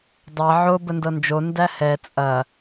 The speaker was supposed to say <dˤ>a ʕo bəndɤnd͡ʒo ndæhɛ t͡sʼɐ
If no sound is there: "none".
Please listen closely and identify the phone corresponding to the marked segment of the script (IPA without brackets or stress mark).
dˤ